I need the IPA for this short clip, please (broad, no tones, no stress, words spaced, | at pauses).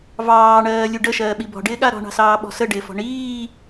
vɑːɳɜːlʲu ɖəʃɜːɓi bɔ̤ɖɪːɠa ɾɔ̤ɳɑ̤sɑːɓɔ̤ səɖɪːfɔ̤ ɳiː